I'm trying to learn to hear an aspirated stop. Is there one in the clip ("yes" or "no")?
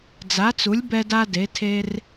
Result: yes